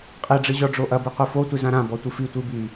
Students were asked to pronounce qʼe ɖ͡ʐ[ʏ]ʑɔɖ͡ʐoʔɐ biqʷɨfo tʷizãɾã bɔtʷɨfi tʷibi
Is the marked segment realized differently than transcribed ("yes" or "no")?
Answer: yes